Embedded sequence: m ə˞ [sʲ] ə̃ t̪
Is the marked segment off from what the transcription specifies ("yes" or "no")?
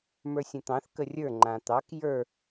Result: no